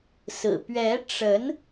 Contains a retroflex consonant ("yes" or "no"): yes